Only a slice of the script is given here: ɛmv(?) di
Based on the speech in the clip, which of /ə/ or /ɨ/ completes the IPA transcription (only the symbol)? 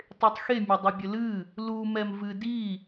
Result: ɨ